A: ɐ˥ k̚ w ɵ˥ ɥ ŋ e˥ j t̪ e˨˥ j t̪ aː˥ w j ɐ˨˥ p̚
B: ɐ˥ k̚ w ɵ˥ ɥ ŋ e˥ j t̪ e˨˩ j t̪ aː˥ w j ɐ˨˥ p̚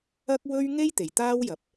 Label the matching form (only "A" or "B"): B